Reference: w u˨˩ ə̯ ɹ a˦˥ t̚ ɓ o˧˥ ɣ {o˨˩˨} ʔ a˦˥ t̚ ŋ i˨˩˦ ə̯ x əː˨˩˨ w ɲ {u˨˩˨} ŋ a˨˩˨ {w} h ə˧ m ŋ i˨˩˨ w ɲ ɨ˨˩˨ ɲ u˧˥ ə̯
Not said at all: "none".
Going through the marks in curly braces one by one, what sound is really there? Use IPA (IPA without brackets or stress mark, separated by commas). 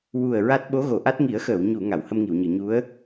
o˨˩˨, u˨˩˨, w